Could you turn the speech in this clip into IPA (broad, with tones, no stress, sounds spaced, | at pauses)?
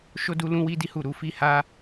ʃ o˦ d u˦ l ũ˦ w i˦ d i˦ h u˦˨ ɾ u˨˦ f i˦ h a˦